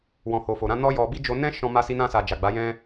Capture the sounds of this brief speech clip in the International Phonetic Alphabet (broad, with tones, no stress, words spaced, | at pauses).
wɔ̃˨ ho˨fo˨ɾã˨˦ nɔ˦ jɔ˧ bi˦d͡ʒo˧ nɛ̃˦ʃɔ̃˧ ma˧si˧nã˧sa˨ d͡ʒa˨ɡ͡ba˨˦ jɛ̃˧